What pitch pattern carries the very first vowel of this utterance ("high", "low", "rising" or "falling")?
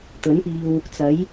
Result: rising